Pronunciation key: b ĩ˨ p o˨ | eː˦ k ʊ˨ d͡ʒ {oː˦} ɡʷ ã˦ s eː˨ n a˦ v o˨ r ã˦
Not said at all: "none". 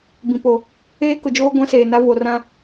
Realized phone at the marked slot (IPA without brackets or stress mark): oː˦